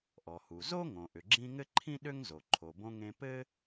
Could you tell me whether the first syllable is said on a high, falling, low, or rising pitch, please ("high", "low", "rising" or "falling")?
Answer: low